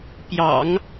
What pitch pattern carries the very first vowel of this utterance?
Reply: low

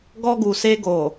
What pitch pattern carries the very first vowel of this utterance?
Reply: high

